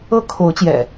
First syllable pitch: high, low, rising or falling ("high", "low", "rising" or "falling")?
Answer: high